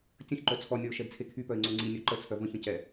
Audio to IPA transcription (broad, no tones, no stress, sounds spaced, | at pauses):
tʲ ə̃ ç ǃ œ t͡sʰ ɔ nʲ ɔ ʊ̯ ʃ ɛ d t͡sʰ e kʰ y p œ ɪ̯ ŋ͡ǀ o ŋ͡ǀ i nʲ o ǃ ə t͡sʰ œ v ə̃ ç ə̃ c ɛ